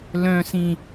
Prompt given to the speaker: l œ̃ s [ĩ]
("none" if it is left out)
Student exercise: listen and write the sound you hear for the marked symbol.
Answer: ĩ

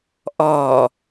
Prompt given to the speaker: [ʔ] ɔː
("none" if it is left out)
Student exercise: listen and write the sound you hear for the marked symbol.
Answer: ʔ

